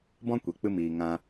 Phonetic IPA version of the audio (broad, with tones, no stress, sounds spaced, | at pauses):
b ɔ̃˦ kʷ e˨ k͡p ɨ˧ m iː˨ ŋ ã˧